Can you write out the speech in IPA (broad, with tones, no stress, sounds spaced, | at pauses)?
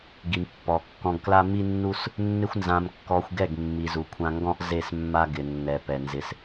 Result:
ɡ i˨ m pː ɔ˨ kː ɔ̃˧ ɡ k l a˦ m i˦ nː u˦ s | nː ɪ˦ xʷ n z ã˧ m kː ɔ˧ xʷ ɡ ɛ˦˨ ɡ mː i˨ z u˨ kʷʰ ã˧ ŋ ɡ ɔ̃˦ ʔ z e˦˨ s mː a˦ ɡ ɪ˨ nː ɛ˨ p ɛ˨ n z ɪ˧ s